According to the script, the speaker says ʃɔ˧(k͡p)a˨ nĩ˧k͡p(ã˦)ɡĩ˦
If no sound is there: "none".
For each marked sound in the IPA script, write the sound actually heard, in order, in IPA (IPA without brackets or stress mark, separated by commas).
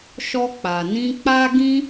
k͡p, a˦